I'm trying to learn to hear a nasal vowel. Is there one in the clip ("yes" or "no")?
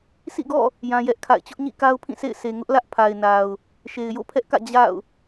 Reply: yes